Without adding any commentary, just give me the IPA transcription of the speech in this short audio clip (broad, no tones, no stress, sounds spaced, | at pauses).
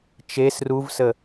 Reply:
t͡ʃ e s r u v s ə